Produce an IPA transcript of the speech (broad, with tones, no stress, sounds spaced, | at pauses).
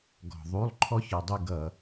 ɡ ɔ̤˩ ðˤ u˩˧˩ lˠ ǃʰ ɔ˦ ç ɔ˩ dˤ u˦˨ ɡ ʌ˧˩˧